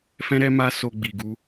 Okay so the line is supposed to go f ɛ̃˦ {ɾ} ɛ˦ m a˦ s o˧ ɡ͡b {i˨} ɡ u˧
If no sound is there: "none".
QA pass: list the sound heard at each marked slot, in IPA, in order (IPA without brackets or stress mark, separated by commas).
ɾ, i˨